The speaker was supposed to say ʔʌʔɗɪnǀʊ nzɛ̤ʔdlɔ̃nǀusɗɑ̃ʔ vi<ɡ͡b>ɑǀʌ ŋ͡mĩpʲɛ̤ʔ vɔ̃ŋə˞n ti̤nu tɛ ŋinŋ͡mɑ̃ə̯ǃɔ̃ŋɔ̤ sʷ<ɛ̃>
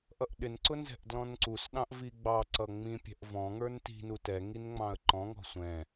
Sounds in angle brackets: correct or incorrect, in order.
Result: correct, correct

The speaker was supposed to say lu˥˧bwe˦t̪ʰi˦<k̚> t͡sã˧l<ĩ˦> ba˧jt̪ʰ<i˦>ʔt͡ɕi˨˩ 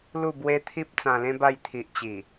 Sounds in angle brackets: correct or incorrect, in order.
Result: incorrect: p̚, incorrect: ẽ˦, incorrect: i˨

